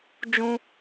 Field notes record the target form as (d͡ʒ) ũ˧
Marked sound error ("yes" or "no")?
no